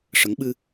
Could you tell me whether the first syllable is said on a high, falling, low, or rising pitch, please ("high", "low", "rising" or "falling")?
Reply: rising